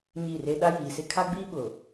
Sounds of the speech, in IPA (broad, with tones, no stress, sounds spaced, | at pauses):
ɲ i˦˨ r e˦ ɗ a˦ j iː˨ s ɪ˦ kʰ a˦ ɡ͡b iː˦ ɓ ʊ˨